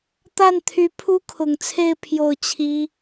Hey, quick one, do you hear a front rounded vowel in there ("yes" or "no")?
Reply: yes